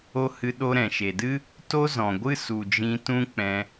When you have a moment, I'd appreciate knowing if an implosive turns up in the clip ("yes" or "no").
yes